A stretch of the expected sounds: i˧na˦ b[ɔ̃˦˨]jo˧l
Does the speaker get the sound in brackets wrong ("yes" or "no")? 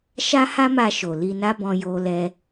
yes